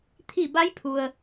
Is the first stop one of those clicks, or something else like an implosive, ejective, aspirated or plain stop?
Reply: aspirated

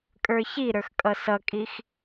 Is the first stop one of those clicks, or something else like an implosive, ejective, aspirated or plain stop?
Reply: ejective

